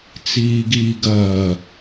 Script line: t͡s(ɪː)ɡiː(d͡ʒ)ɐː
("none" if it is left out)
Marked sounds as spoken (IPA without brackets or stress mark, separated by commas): iː, ɡ